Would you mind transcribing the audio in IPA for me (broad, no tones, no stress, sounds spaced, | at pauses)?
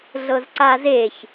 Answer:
ɮ ɤ z ǀ a z e ç